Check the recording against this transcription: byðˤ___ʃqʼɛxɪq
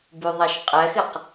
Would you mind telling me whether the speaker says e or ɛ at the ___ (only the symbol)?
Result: ɛ